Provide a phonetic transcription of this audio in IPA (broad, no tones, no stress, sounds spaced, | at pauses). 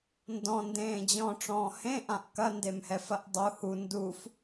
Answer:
n d ɔ̃ n d ẽː d͡ʑ ɔ̃ ʈ͡ʂ ɔ̃ː h ẽ ʔ ã ʔ k ɐ n d e m h ɛ f ɐ ʔ dˤ u h u n d u f